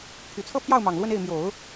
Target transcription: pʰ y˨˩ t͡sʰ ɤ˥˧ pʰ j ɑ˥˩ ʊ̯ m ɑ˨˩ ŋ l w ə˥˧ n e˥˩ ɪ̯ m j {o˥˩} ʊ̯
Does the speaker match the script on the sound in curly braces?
no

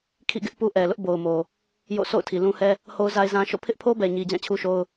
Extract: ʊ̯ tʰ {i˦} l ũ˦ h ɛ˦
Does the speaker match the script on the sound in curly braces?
no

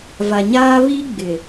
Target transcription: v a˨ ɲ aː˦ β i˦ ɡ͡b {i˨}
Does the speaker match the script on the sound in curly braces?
no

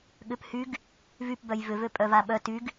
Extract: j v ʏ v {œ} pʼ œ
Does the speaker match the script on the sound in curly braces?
no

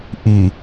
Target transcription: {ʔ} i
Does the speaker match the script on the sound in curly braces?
yes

